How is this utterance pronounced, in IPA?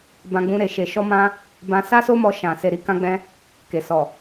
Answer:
b ã˧ ɡ͡b ũ˧ ɾ e˨ ʃ e˨ ʃ ɔ˧ m ã˧ | b ã˧ s a˦ s o˦ m ɔ˧ ʃ ã˨ s e˨ ɾ i˨˦ k ã˧ ɡ͡b ɛ̃˧ | k e˨ s ɔ˨

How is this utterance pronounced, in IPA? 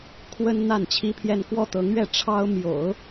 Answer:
kʰ w ə˥ n n̪ a˥˩ n t͡ɕʰ i˥ pʰ j ɛ˥˧ n k w ɔ˥˩ t̪ ɤ˧˥ ŋ ɥ ɛ˥˩ ʈ͡ʂʰ ɑ˥ ʊ̯ m j o̰˨˩˦ ʊ̯

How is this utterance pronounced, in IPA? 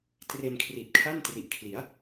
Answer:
t r e˧ n kʰ r i˨˩ t̚ kʰ a˥˩ n t r i˨˩ ʔ kʰ l i˩˦ a̯

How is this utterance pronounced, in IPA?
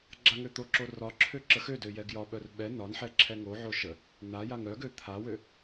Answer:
ɡ͡ǁ a ŋ ø t̪ o ǁ o r ɒ ǁʰ ø ǁ ə x ø d ø j ɛ ɡ j ɒ ɓ œ r ɓ ɛ n ɒ n ħ ɛ ǁʰ ɛ ŋ o ʕ o ʃ ə | n a j a ŋ œ ɡ ø t̪ʰ a w ø

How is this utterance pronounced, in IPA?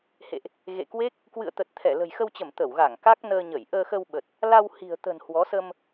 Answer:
h ḛ˧˨ ʔ | ɣ ḛ˧˨ k w e˦˥ k̚ | k w ɨ̰˧˨ ə̯ t̪ ə˨˩ t̚ t̪ʰ ɛ˧˩ l ə̤˨˩ j x ə˧ w t͡ɕ ə˧˩ m t̪ ə˧˩ w ɣ a˧˩ ŋ k a˦˥ k̚ n əː˧ ɲ ə˧˩ j ʔ əː˧ x ə˧ w ɓ ə˨˩ t̚ | l a˧ w h i̤˨˩ ə̯ t̪ ə̤˨˩ n h w ɔ˨˦ s ə˧ m

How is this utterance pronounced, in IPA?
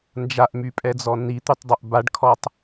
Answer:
n d͡ʒ a ʔ m y pʼ ɛ d͡z ɔ n i t̪ y tˤ dˤ o ʔ b a ɖ kʰ ɔ tˤ

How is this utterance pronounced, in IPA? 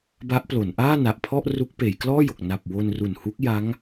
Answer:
b a˦˥ ʔ p l o˩˦ n ʔ aː˥˩ n a˨˩ ʔ pʰ ɔ˥˩ ʔ r u˦˥ k̚ p eː˩˦ j k l ɔː˥˩ j o˨˩ k̚ n a˨˩ p̚ w o˧ n r u˨˩ n h u˦˥ k̚ j a˦˥ ŋ

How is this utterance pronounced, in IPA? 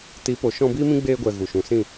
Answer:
t iː˨˦ p o˨ ʃ ɔ̃˧ b iː˦ m ĩ˦ ɡ͡b eː˧ ɡʷ ɛ˨ ɣ u˨ ʃ ũ˨ s ĩ˦˨

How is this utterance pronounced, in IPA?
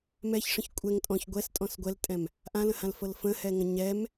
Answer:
m ɛ ç ʂ ə̃ ç kʷʼ ɛ ŋ tʼ ɔ̃ ç ɡʷ ɛ s tʼ ɔ̃ s ɡʷ ɛ l tʼ ɛ̃ m | ʔ ã l ə̃ h ã l f ɤ l f ə̃ h ɛ ŋ ə̃ ɲ ɛ m

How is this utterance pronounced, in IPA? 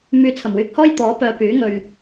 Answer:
m yː˨ t͡sʰ ɐ˨˩ m w yː˨ k̚ h ɔː˥ j t̪ ɔː˨˥ p œː˨ p yː˨˥ ŋ ɵ˨ ɥ

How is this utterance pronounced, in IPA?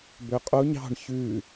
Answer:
b ø qʼ o ɲ ɑ̤ ɳ ç ʉ

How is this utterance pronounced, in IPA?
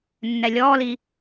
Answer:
nː ɛ lʲ ɔː l i

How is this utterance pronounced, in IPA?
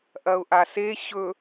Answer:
ʔ ɐ ʊ̯ ʔ a s e ɕ ɵ

